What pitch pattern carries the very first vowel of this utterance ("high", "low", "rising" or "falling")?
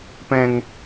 high